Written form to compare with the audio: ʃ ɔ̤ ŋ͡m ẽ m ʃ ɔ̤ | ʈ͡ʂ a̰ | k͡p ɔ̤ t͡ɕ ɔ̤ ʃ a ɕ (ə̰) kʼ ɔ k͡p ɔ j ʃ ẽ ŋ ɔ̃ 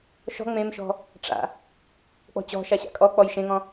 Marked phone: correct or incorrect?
incorrect: a̰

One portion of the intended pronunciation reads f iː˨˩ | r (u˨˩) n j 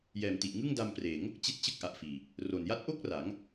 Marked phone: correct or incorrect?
incorrect: o˨˩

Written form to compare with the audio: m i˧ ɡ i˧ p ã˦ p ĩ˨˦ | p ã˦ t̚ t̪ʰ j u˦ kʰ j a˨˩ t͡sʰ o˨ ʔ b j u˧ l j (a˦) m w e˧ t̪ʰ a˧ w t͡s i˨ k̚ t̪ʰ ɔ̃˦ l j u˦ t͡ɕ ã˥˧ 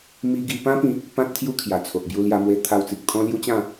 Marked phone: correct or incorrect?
incorrect: a˧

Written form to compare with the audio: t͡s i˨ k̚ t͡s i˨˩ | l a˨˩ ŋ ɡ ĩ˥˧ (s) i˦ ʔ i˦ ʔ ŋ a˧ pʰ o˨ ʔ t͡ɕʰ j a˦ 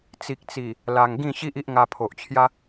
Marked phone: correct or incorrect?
incorrect: ɕ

